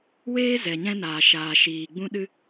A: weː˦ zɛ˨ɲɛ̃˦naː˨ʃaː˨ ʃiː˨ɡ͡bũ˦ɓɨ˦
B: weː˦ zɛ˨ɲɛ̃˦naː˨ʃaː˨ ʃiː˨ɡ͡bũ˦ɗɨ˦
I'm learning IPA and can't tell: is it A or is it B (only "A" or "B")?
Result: B